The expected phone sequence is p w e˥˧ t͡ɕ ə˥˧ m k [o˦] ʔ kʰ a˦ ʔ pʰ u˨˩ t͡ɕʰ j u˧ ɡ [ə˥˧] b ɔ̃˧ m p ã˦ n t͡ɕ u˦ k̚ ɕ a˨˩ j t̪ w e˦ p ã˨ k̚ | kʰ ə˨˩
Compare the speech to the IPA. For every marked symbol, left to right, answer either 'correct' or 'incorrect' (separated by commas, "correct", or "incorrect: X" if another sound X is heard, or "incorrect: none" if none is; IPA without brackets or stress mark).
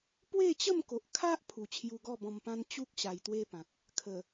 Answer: incorrect: o˨, incorrect: ɔ˥˧